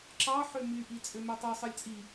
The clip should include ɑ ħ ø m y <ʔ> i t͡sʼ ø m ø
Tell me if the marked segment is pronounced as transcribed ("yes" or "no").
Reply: yes